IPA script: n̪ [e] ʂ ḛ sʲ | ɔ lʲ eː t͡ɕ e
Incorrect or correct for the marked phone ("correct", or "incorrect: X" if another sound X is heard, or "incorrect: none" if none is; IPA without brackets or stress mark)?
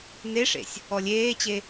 correct